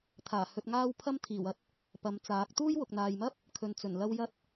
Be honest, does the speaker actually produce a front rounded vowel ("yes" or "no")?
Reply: no